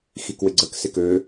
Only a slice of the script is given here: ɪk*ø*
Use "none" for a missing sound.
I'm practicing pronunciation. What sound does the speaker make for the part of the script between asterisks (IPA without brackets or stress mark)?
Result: ø